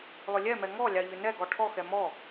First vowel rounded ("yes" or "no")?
yes